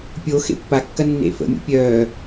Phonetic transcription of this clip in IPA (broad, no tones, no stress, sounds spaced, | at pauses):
pʲ o x ḛ pː a kː ɐ nː ḛ f ə̰ mʲ ṵ pʲ œː